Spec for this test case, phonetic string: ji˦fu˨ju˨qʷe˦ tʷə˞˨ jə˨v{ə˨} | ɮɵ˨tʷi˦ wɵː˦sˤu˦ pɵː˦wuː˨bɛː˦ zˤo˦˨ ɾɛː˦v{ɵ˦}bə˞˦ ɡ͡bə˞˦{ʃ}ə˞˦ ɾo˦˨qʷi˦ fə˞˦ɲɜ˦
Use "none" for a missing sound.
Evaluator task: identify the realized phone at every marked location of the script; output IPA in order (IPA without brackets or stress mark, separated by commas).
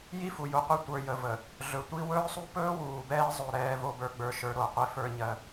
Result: ə˨, o˦, ʃ